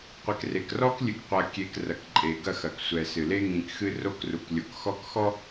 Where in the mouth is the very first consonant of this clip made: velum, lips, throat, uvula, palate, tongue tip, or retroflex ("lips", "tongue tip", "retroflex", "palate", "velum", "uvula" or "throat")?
uvula